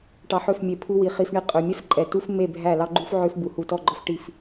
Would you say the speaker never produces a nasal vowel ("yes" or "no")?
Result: yes